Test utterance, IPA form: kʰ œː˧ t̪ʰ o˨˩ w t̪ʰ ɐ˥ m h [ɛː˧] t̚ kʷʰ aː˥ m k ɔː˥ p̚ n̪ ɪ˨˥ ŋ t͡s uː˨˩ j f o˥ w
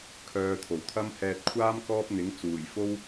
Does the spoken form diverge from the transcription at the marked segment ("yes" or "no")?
no